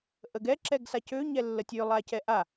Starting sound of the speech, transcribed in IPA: ʔ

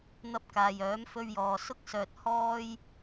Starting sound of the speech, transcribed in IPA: n̪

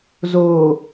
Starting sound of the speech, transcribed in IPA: z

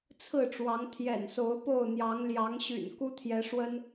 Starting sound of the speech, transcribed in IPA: t͡sʰ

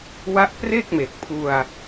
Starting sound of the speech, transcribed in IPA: w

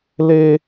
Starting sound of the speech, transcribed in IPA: l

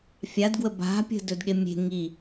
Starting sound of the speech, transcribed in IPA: fʲ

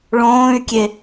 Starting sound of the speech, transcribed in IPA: ɭ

